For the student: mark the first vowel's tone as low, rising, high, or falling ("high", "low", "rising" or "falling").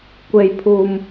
low